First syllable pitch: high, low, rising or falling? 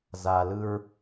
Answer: low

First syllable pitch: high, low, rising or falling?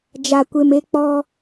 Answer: low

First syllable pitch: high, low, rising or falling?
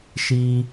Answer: low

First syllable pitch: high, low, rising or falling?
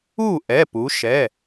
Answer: falling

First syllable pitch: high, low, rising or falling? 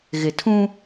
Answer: low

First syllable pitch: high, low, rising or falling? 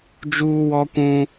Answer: high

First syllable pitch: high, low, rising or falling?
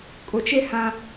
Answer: low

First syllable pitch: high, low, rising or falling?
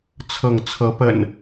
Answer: falling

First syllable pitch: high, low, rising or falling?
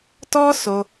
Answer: high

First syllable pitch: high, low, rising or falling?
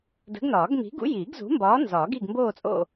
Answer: rising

